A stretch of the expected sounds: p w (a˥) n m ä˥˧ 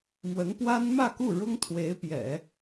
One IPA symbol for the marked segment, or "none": a˥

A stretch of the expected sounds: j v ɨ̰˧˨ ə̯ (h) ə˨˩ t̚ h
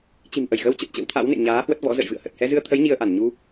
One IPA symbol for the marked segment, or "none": h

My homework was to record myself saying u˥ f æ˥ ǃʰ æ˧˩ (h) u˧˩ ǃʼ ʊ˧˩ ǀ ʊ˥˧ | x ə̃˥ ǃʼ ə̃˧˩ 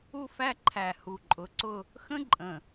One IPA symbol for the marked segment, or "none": h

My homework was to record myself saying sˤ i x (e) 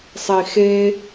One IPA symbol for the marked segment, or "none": e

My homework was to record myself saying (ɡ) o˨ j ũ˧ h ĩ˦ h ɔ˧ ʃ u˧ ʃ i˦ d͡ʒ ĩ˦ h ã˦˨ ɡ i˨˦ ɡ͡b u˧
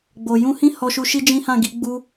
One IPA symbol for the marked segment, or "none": ɡ͡b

